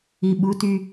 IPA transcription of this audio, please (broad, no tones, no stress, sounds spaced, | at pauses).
i ɓ u t y